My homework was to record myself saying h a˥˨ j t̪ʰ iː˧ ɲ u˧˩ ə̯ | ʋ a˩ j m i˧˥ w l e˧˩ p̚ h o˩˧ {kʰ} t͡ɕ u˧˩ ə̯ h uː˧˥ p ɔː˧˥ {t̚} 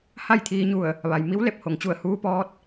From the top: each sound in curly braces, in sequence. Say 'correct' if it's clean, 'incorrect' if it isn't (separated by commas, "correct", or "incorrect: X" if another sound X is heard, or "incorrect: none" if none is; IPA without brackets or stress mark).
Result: incorrect: ŋ, correct